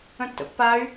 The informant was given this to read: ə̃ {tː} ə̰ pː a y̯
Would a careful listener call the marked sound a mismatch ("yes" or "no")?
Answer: no